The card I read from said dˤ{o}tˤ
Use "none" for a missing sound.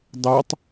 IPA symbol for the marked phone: o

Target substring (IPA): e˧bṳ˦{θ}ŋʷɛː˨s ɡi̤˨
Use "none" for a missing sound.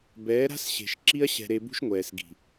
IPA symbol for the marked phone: ʃ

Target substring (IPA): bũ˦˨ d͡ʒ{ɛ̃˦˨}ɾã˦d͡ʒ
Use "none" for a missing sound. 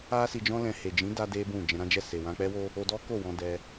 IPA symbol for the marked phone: ɛ̃˧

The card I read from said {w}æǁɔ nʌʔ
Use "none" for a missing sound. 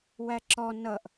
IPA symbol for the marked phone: w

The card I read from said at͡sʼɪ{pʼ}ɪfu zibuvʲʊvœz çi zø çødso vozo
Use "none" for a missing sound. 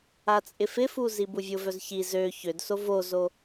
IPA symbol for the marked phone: f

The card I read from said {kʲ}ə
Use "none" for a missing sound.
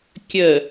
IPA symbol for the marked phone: kʲ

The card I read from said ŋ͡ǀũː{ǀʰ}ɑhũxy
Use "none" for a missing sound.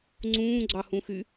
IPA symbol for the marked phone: ɡ͡ǀ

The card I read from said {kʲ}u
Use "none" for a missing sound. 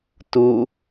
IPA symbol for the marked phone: t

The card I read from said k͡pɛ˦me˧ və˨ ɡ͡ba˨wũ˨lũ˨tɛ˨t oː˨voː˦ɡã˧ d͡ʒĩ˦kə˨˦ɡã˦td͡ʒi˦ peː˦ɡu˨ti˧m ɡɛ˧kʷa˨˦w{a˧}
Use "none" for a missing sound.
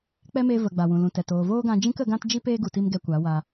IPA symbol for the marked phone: a˧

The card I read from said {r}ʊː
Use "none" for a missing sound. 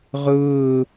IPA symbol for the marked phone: ʁ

